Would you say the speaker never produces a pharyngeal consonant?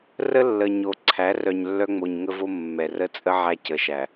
no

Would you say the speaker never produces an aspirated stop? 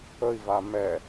yes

